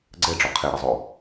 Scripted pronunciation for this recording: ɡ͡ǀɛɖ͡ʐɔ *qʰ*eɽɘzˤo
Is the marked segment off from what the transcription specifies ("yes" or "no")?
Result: no